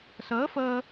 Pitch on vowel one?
rising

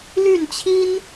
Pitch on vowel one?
falling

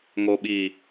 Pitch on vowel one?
low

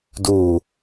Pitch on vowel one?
low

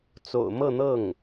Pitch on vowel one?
low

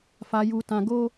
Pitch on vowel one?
low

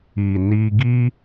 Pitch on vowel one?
low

